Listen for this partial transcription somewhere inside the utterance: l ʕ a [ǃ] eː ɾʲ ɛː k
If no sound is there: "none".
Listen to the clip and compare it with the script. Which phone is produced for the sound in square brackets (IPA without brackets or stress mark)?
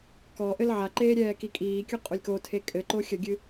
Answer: ǃ